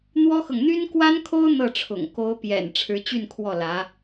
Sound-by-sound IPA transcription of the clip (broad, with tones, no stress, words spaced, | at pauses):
n̪wɔ˥xɤ˨ŋ n̪y˥nkwa˥nkʰo˥ʊ̯ n̪ɤ˥˩ʈ͡ʂʰʊ̰˨˩ŋ ko˧˥ʊ̯pjɛ̰˨˩n ʈ͡ʂʰɻ̩˧˥t͡ɕy˥˧nkʰwɔ˥˩ lä˧˥